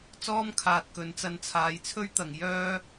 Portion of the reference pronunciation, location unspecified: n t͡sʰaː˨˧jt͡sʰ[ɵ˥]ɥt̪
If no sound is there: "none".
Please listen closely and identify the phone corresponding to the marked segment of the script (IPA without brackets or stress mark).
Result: ɵ˥